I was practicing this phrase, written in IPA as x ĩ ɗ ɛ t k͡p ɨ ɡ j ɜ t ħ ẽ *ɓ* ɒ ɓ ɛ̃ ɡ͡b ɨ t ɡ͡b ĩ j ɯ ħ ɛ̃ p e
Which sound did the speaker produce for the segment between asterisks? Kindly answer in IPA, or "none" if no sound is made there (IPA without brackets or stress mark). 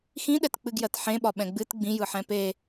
ɓ